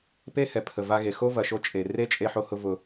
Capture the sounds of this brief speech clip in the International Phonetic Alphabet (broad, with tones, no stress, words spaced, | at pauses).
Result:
pe˦hɛ˨pʰə˨ va˧ɣe˨ xo˦vɐ˨ ʃo˦t͡ʃʼe˨ re˦t͡ʃʼe˧ħo˧hʊ˧ vʊ˧